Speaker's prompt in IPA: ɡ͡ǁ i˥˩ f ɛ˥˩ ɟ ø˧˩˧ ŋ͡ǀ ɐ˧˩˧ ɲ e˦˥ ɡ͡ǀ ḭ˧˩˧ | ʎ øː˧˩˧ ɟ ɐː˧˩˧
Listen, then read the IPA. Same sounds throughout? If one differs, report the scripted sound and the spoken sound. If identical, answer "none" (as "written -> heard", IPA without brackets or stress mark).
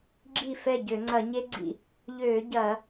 none